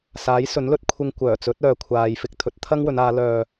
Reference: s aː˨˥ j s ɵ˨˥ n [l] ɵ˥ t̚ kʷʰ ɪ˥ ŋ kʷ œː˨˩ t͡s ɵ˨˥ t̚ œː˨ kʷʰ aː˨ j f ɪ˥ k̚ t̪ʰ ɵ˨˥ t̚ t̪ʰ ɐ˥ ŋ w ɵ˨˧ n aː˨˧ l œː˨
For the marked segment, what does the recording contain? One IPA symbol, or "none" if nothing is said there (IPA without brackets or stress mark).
l